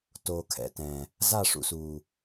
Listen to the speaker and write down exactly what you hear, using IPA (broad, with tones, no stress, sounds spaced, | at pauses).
t oː˨ kʰ ɛ̰˨ t ɛ̃˨ | z a˦˨ ʂ ṵ˨ s uː˨